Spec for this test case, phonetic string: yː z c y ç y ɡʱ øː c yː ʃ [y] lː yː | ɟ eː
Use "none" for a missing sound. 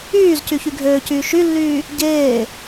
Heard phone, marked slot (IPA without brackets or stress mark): y